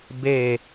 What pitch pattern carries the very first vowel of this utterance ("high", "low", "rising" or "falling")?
falling